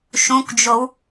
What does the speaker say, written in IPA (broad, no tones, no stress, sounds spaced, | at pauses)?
ʃ ũ k d͡ʒ o w